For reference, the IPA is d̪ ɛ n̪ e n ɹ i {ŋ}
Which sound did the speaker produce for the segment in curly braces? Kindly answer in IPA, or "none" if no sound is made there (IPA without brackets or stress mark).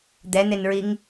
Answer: ŋ